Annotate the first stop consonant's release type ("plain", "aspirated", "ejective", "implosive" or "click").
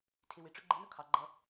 aspirated